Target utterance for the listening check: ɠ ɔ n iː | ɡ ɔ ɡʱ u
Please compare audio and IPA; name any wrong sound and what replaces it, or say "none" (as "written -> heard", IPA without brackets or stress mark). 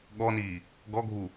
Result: none